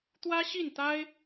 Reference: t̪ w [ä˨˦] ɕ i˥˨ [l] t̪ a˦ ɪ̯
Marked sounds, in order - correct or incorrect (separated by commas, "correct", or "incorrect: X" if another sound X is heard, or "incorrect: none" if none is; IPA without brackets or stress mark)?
incorrect: ä˦, incorrect: n